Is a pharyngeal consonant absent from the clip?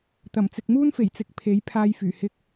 yes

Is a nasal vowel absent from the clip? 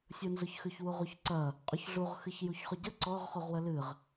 yes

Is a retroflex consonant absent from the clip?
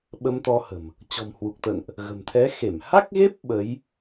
yes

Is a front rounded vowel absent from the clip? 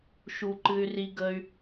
no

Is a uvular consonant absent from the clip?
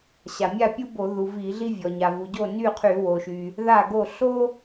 no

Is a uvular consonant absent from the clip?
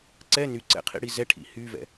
no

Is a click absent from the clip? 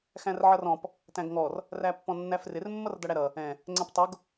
no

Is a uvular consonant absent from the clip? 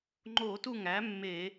yes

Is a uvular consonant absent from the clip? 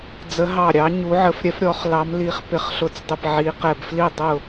no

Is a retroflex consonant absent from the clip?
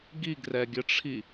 no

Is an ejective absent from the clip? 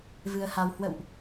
yes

